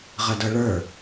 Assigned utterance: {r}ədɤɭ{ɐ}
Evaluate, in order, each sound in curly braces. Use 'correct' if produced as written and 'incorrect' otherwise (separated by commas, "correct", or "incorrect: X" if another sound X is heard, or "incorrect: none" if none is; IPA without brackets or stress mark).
incorrect: ʁ, incorrect: ə˞